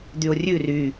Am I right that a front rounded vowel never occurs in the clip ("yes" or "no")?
no